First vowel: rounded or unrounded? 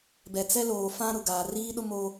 unrounded